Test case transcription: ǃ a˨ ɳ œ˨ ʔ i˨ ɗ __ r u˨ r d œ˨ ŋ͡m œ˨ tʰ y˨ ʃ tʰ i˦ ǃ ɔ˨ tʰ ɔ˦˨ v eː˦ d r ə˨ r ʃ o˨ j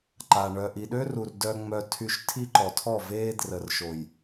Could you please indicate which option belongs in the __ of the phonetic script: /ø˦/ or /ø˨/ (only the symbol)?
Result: ø˦